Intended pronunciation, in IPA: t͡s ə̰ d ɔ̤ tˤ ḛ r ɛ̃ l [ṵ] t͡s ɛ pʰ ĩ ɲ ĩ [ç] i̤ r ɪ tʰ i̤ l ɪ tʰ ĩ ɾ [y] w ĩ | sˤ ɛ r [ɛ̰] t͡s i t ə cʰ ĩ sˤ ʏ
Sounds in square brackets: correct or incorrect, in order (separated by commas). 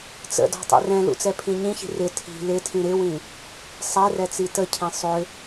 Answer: correct, correct, incorrect, incorrect